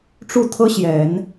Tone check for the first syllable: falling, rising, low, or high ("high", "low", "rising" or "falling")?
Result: falling